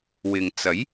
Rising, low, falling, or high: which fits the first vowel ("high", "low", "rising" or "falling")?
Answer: low